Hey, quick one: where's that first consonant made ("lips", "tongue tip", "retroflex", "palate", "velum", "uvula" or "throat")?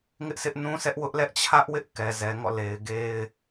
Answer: velum